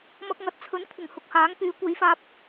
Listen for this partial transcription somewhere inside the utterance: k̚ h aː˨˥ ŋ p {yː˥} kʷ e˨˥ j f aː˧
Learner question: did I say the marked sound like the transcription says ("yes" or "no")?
no